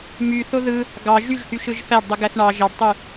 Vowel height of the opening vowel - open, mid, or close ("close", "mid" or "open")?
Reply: close